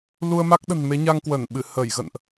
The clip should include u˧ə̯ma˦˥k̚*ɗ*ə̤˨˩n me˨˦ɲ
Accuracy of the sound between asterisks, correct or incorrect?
correct